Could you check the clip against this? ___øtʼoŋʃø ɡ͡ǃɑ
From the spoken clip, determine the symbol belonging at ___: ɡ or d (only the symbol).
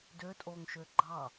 d